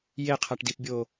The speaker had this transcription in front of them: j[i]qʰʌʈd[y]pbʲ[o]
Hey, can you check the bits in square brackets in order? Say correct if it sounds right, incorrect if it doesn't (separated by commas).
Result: incorrect, incorrect, correct